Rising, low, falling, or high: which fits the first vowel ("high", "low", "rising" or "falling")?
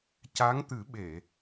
rising